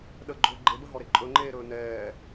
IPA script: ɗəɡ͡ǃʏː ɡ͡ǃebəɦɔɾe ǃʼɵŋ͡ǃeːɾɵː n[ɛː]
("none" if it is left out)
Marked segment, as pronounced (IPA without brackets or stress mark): ɛː